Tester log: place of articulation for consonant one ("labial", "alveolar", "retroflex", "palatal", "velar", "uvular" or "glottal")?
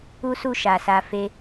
alveolar